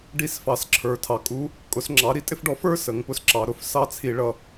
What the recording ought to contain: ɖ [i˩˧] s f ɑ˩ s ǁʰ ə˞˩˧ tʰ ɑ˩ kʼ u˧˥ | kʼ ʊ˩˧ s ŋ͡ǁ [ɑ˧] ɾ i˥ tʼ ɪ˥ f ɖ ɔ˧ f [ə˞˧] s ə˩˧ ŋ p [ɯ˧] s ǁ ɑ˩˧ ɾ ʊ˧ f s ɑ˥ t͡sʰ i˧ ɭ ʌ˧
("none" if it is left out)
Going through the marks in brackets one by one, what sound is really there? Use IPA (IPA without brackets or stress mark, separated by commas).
i˧˥, ɑ˩˧, ə˞˥, ʊ˧